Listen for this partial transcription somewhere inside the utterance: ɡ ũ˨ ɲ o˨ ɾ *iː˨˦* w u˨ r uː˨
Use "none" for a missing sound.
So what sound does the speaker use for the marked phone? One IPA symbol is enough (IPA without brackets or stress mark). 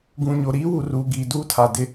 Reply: iː˦